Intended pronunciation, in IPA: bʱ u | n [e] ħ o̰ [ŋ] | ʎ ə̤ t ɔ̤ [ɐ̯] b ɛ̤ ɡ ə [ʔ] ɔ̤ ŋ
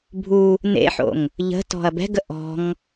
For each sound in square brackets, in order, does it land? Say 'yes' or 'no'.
no, yes, yes, yes

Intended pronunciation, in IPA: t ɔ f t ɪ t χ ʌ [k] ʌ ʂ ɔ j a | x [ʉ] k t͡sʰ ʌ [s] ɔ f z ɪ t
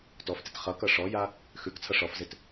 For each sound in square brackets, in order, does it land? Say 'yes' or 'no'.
yes, yes, no

